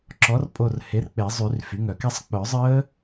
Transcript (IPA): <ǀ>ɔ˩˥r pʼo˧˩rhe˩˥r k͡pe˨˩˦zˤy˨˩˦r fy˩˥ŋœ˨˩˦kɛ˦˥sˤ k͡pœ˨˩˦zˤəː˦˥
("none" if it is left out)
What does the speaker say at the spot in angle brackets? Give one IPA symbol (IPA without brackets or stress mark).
ǁ